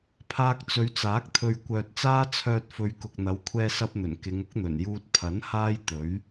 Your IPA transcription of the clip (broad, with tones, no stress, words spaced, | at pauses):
pʰaː˧k̚t͡sɵ˨˧ɥt͡saː˨˥k̚ t̪ʰɵ˨ɥkʷœː˨t̚t͡saː˥ t͡sʰœː˧t̚fɵ˨˧ɥ kʊ˨k̚n̪ɐ˨˧w kʷʰɛː˧sɐ˧p̚n̪ɵ˨˩n kɪ˨˧ŋʊ˥k̚n̪ɵ˨˩njuː˧t̚ pʰɐ˨˥n haː˥jt̪ɵ˨˥ɥ